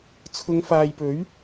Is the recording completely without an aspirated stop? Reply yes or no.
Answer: no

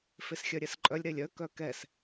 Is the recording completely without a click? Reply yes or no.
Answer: no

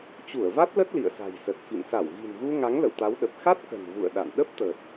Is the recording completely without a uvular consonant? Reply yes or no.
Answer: yes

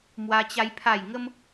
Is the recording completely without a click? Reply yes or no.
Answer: yes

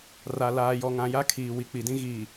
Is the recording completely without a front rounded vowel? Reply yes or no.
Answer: yes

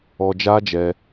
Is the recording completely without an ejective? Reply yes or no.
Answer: yes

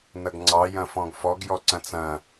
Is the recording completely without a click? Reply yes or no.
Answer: no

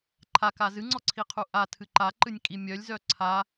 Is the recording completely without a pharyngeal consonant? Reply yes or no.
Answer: yes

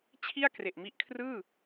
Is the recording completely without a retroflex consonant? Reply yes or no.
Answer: yes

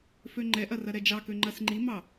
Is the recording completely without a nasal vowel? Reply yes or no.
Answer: yes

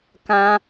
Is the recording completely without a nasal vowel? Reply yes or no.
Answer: no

